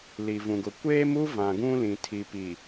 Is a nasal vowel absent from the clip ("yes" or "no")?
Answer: no